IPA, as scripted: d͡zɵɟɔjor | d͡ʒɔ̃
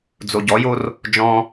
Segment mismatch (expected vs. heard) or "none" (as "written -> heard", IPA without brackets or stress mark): ɵ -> o